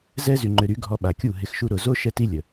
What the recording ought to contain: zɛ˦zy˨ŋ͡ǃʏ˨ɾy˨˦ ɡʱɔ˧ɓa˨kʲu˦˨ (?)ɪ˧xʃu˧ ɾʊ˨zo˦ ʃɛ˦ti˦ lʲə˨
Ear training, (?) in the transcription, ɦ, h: ɦ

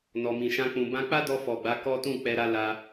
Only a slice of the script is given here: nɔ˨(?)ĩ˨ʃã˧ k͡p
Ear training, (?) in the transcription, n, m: m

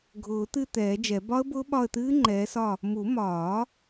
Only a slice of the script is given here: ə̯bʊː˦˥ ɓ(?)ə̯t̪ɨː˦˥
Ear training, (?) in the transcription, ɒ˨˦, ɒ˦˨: ɒ˦˨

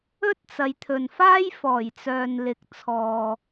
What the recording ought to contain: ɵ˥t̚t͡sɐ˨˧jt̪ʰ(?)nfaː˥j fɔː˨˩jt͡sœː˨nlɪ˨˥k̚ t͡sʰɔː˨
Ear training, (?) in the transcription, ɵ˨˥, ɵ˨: ɵ˨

